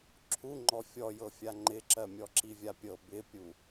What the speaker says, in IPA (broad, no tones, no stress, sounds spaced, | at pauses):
ǁʰ u ŋ͡ǃ ɔ fʲ ɔ j ɤ fʲ a ŋ͡ǃ ɪ ǁ ɜ mʲ ɔ ǁ i vʲ a pʲ ɤ b ɪ pʲ u